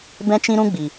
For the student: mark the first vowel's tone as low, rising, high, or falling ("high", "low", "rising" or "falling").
high